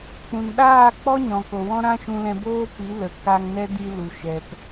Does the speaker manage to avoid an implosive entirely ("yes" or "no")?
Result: no